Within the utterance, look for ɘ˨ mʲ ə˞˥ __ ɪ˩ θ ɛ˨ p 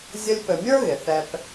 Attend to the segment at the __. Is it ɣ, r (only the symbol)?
ɣ